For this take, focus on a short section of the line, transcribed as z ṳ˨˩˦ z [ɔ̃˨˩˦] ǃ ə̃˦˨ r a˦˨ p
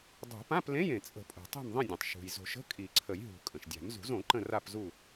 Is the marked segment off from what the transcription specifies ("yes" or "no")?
yes